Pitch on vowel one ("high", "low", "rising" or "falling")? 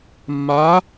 rising